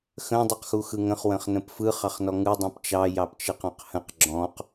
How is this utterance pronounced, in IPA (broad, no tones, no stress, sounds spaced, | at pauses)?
x ə̃ dˤ u q x u x ɯ ŋ ə̃ χ w ə̃ χ n ə̃ p f ɯ χ ɑ χ n ɔ ŋ ɯ dˤ ũ p t͡ʃ ɑ j ɑ p t͡ʃ ɯ q ɔ̃ q h ə̃ q ɡ͡ǁ ɔ̃ q